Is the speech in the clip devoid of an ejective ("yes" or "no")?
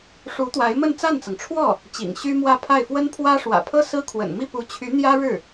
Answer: yes